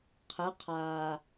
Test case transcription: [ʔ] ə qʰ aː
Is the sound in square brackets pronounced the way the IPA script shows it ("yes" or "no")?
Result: no